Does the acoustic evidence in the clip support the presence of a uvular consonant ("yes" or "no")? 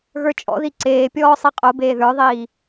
yes